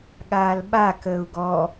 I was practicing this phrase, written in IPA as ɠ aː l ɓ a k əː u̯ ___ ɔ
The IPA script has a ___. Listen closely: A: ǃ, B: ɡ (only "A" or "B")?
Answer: B